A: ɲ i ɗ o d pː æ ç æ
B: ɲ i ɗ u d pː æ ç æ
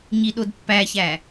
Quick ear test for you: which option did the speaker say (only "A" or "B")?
A